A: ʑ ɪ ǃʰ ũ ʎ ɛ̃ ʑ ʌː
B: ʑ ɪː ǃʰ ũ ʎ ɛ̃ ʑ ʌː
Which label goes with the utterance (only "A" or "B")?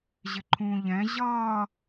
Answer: A